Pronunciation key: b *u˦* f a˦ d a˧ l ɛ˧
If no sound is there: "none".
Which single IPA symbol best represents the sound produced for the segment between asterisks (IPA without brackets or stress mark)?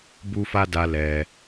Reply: u˦